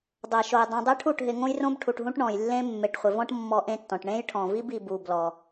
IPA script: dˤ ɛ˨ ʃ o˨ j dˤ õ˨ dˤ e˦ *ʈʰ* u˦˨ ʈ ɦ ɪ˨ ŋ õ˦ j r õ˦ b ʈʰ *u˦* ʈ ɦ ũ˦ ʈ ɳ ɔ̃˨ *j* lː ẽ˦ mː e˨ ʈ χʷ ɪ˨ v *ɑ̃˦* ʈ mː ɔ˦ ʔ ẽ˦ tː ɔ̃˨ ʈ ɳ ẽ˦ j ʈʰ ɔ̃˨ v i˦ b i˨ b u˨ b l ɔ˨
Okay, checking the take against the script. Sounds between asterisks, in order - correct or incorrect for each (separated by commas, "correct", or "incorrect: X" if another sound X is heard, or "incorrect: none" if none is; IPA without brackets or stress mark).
correct, incorrect: u˨, correct, incorrect: ɔ̃˦